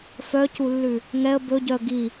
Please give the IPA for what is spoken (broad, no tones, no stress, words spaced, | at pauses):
fœculːʉ | ŋɛə̯ bɵɟœə̯ ɡi